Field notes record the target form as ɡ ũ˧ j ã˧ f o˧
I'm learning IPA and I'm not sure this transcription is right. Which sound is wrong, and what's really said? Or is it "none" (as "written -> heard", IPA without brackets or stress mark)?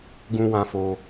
j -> w